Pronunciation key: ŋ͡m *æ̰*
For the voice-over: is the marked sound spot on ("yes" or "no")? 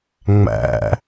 yes